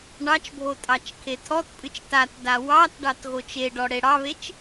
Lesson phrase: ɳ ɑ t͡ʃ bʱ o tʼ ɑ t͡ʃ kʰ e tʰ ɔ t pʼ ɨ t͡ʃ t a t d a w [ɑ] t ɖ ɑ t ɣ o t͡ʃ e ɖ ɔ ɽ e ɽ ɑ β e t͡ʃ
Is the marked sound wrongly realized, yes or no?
no